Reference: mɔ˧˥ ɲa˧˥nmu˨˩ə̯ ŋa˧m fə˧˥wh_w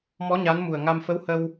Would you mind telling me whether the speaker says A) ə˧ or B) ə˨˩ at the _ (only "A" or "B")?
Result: A